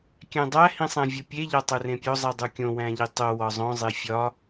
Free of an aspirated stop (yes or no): yes